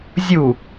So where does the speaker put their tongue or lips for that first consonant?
tongue tip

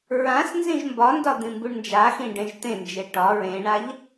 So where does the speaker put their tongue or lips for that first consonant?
tongue tip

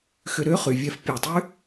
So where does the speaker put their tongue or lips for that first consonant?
velum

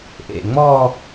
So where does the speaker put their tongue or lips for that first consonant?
throat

